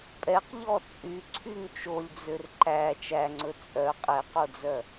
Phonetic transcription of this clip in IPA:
pʼ ɛ q ʎ ɔ t͡sʼ y ǀʰ y ŋ t͡ʃ o lʲ d͡z ø r ǃ æ t͡ʃ æ ŋ͡ǀ ɵ t͡sʼ œ qʼ ɛ q o d͡z œ

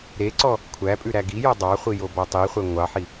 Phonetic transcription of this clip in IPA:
ɾ e ǀ ɔ | kʷʰ æ pʼ ʉ ɾ æ ɡ i j ɔ dˤ ɑ χʷ i j o b ɔ tˤ i χʷ ɛ ŋʷ ɑ ħ i

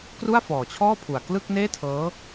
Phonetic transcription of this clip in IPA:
k r u˥˩ a̯ f ɔː˨˩ t͡ɕʰ ɔː˥˩ pʰ u˨˩ a̯ k l ɯ˥˩ k̚ n eː˥˩ tʰ ɤː˦˥

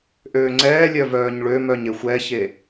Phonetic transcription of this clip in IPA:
ʔ øː ŋ͡ǀ ɛː lʲ œ v œː ɲ ɭ ø m œ ɲ e xʷ ɛ ç e

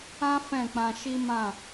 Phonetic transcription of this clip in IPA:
ã˦ f ɛ̃˦˨ k͡p ã˧ ʃ i˦ m ã˦˨

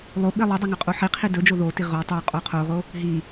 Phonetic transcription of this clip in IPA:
lˠ o ɓ i lˠ ɵ dˤ ɵ ŋ ɵ qʼ o ħ i qʰ i d ɵ d͡ʒ o ð o t i ʁ o tˤ o qʼ o qʰ o ʁ o | ɦ i

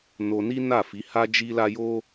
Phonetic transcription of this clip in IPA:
n o˧ n i˦ n a˦˨ f i˨˦ h a˦ d͡ʒ i˦ l a˦ j o˦

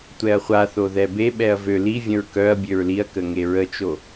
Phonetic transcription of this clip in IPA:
tʷ ɛ ɐ̯ χʷ a θ o ð ɛ b e ɓ ɛ ɐ̯ v ø l i vʲ ə̃ ɹ k œ ɐ̯ bʲ ø ɹ l i ɐ̯ k ə ŋ e ɹ ə t͡ʃ o

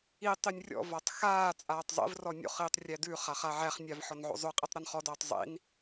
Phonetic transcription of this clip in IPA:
i tˤ i nʲ rʲ ɔ̰ v a tˤ x aː t͡sʼ aː tˤ zˤ ḭ v r ɔ nʲ o̰ χ iː tˤ rʲ æ d ʉː χ a χ a ʕ æ χ nʲ a v ħ ɔ n ʕ o̰ zˤ ʉ qʼ i tˤ ɾ ɐ n χ ɔ d aː tˤ zˤ ḭ n

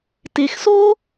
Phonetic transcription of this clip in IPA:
t e˨ x s oː˦

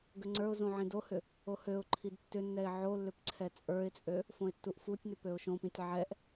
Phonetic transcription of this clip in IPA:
ɡ ʏ ŋ͡ǀ ə˞ ʊ̯ z õ ʕ ĩ d o h ʏ | o h ø ʊ̯ ǃʰ i d tː ʏ nː ɛ ɪ̯ ʕ o lː ʏ p ǀʰ ɛ t͡sʼ ə˞ ɪ̯ t͡sʼ ø | f õ ɪ̯ tː u ʔ f u tʲ n ʏ p ø ʊ̯ ʃ õ p ĩ tʲ ʕ ɛ ʔ

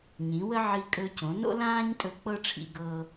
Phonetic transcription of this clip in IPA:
ɲ ĩ˩˥ w ə˥ ʕ i˧ kʼ ɵ˧ c õ˩˥ n o̰˥ l ãː˥ ɲ tʼ ɵ˧ k͡p ɤ˥ ʈ͡ʂʰ ḭ˧ ɡ ɤ˧

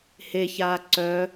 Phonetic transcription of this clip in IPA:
h e ç aː ǀ œ

